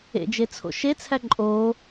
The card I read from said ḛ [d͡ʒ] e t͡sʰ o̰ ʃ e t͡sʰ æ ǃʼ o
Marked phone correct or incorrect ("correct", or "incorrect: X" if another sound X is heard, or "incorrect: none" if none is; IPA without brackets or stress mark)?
correct